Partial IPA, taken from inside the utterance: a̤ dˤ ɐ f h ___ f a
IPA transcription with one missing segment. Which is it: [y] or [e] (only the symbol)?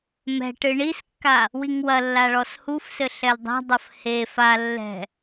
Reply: e